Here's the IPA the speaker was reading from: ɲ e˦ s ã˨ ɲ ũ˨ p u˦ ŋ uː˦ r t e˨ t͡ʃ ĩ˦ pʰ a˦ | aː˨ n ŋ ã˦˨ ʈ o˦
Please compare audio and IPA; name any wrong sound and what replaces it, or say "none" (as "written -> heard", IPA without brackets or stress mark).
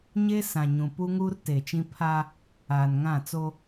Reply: ʈ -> t͡s